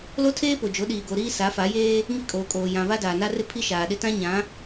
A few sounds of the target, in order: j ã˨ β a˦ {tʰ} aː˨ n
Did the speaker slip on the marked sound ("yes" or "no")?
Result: yes